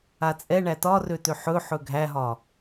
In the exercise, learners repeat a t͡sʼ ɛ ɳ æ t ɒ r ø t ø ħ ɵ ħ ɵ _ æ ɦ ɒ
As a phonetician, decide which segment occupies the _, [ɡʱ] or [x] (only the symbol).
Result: ɡʱ